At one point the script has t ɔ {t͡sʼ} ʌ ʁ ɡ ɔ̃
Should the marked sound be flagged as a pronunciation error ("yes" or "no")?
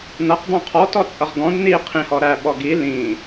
no